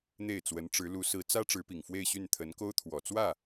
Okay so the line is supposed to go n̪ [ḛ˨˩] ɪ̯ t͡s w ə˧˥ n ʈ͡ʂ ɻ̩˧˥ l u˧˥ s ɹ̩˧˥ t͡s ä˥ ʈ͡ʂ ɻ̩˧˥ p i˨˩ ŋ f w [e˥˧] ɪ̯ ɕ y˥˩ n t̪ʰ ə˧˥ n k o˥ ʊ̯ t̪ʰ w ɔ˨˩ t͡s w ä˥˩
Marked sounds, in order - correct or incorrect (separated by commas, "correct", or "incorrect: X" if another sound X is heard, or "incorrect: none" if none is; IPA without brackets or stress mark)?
incorrect: e˥˩, correct